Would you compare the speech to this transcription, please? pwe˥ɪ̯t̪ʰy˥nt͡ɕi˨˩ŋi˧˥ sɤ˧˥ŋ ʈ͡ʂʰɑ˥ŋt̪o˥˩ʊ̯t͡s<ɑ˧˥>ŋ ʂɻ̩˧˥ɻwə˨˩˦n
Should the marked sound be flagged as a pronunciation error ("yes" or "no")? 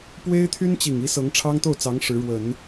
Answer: no